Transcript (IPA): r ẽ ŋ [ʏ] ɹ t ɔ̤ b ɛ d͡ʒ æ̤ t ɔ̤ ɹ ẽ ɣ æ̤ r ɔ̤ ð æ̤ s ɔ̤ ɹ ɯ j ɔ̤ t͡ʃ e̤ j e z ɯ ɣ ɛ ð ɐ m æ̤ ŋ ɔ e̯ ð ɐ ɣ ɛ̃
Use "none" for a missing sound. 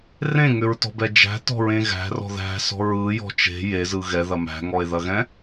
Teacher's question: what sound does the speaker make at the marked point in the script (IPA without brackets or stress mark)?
ʏ